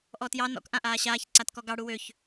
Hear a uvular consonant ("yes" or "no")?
no